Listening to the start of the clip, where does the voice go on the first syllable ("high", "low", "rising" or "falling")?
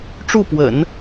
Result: falling